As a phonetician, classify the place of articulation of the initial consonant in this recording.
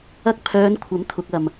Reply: velar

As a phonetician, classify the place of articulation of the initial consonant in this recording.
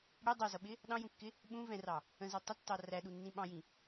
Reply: retroflex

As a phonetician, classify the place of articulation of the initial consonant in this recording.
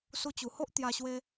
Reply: alveolar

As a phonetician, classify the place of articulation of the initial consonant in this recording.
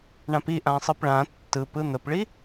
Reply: retroflex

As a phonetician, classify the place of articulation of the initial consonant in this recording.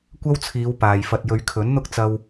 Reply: velar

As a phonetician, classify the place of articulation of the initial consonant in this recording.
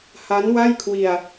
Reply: glottal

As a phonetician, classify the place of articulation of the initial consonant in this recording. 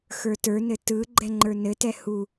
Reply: velar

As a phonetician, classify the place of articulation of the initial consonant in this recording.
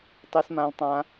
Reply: alveolar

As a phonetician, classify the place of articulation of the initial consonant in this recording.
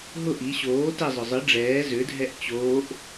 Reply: glottal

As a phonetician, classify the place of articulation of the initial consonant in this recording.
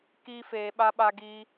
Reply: velar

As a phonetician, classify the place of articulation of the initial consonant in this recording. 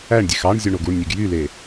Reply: retroflex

